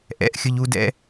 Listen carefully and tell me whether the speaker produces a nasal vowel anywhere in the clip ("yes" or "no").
no